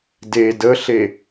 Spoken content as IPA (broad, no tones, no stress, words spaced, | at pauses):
de dəɬe